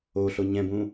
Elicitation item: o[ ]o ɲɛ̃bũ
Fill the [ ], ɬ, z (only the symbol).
ɬ